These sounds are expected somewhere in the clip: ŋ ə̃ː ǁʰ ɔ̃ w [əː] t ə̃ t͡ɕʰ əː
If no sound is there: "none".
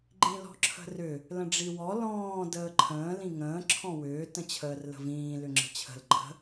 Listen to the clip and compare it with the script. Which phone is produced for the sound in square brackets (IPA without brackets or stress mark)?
ʏː